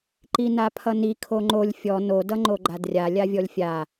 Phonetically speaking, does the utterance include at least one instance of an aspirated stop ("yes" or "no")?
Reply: yes